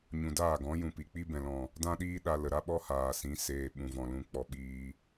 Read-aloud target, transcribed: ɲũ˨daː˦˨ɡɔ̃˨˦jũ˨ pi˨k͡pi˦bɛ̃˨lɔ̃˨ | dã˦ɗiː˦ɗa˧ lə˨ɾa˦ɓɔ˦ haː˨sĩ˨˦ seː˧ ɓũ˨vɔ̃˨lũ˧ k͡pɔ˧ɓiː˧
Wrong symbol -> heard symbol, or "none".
none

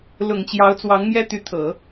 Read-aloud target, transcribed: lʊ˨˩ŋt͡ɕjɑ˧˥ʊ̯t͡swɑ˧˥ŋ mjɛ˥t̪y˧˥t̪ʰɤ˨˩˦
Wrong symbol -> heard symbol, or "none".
none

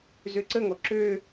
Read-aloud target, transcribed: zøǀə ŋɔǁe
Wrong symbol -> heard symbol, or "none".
e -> ø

